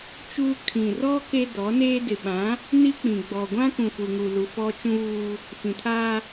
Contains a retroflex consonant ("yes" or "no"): no